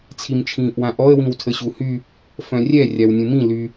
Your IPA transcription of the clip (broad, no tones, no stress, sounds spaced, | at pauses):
t͡sʰ i m t͡ʃʰ ĩː ʔ w ã ʔ ɔ ə̯ w ĩ w tʰ ə ɕ u h y | f œ̃ rʲ ɛ rʲ a w nʲ ũ m ĩ l y